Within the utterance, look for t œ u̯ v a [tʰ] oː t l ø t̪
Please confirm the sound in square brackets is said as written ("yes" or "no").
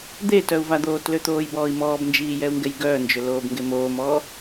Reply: no